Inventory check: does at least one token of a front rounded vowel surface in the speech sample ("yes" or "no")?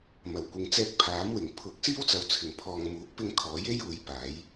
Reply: no